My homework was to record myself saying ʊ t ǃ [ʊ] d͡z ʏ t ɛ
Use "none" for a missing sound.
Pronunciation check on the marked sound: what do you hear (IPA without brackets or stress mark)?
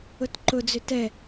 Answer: ʊ